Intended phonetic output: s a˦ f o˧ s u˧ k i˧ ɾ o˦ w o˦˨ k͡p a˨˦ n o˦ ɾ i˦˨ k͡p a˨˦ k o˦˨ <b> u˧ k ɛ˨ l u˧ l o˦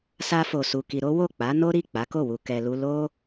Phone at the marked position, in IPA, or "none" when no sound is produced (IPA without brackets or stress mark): w